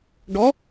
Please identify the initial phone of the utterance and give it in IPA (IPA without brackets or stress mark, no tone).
ɖ